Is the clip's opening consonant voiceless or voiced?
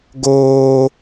voiced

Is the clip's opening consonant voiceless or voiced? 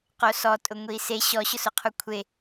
voiceless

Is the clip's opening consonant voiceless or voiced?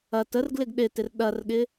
voiceless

